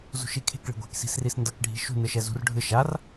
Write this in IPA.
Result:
z ṳ ʃ i kʰ e̤ k ɭ e̤ ɡʷ e̤ k s i̤ s r i s n d ʌ k ɖʱ i̤ ʃ ṳ n ɯ ʃ ɛ z ṳ r ɖʱ ɯ ʃ a r

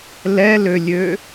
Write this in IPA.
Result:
l ɛ l ø lʲ ø

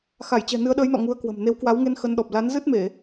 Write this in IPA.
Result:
x a˧˩ j t͡ɕ ɛ̤˨˩ n ɨ˨˦ ə̯ ɗ əː˨˦ j n ɔ̰˧˨ ŋ u˨˦ ə̯ k w ə̤˨˩ m n e˨˦ w k w a˨˦ w ŋ e˧ n x ə˧ n ɗ ɔ˨˩ p̚ l a˨˦ n z ɨ˦˥ t̚ m e˧˩˨

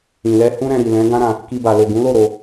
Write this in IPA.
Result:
ĩ˨ l ɛ˧ h ũ˦ ɾ ɛ̃˧ ɾ i˨ l ɛ̃˨˦ ɡ ã˦ ɾ ã˧ | k i˧ b a˨ l o˨ ɡ ũ˨˦ l o˦˨ ɾ o˧

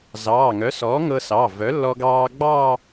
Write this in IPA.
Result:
z ɑː˩˧˩ ŋ œ˩˥ s ɔː˩˥ ŋ ɤ˧ s ɑ˩˧˩ v œ˩˥ lː ɔ˧ ɡ ɑː˧ ɡ͡b ɑː˥˧

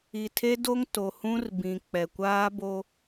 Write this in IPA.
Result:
i˨ tʰ e˦ d o˦ ŋ t o˨ h ũ˦ r b ĩ˨ k͡p ɛ˨ kʷ aː˦ b o˦

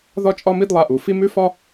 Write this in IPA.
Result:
ð ɒ˦ t͡ʃʼ ɒ˦ m i˦ d lˠ a˦ ʔ u˨ f i˦ m ʉ˦ f ɒ˦

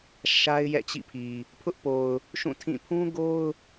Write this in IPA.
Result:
ʃ a˦ ɪ̯ j ɛ̰˦˨ t͡ɕ ḭ˦˨ pʰ i˨ | pʰ ʊ˦ ʔ p o˨ ʊ̯ | ʃ ũ˦˨ tʰ ĩ˦˨ pʰ ũ˦ ɡ o˦ ʊ̯

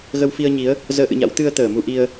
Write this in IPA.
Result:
ɣ ə˧ w f i˧ ə̯ ɲ i˨˦ ə̯ | z əː˨˦ ʔ ɨ̰˧˨ ɲ a̰˧˥ w t̪ ɨ˧ ə̯ t̪ əː˧˩ m u˧ ʔ i˧ ə̯

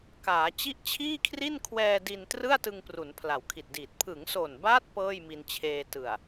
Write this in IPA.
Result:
k aː˩˦ t͡ɕ i˦˥ ʔ t͡ɕʰ iː˥˩ kʰ r i˥˩ n kʰ w ɛː˧ d i˧ n t r ɯ˥˩ a̯ t ɯ˧ ŋ p r u˩˦ n pʰ l a˩˦ w kʰ i˨˩ t̚ d iː˨˩ t̚ pʰ ɯ˩˦ ŋ s o˨˩ n b aː˦˥ t̚ p ɤː˥˩ j m i˧ n t͡ɕʰ eː˧ t ɯ˨˩ a̯

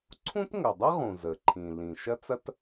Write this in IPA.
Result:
ǀʰ ũ˥ t ŋ ə˩ dˤ ɐ˥ ʁ ũ˩ z ə˩ ǃʰ ĩ˩ l ĩ˩ ʃ ɐ˥ t͡s ɐ˥ t

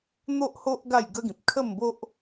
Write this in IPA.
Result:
n̪ o˦ ʔ h o˦ ʔ ɡ a˥˧ j ɡ ə˦ ɡ ĩ˨ p̚ kʰ ə˥˧ m b o˦ ʔ

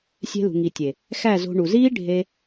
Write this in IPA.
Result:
sʲ e̤˧ l ṳ˨ ŋ i˨ tʲ e˨ | x æ˦˨ z o̤˧ ɳ u˨ z iː˦ ɖʱ e˧

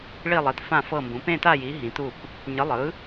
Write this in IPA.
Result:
ɭ i˥˨ lˠ i˨˥ t f ã˥˨ f ɤ˥˨ m b ũ˨˥ p ẽ˥˨ t a˥˨ j i˨˥ ɦ ĩ˨˥ t u˥˨ p | ɲ ɯ˨˥ lˠ ɯ˨˥

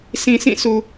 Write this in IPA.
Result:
s ĩ˨ sʰ ĩ˦˨ s u˨

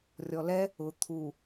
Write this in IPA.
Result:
rʲ ɔ l ɛ | ʊ t̪ʰ u

